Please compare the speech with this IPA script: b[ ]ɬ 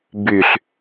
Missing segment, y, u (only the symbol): y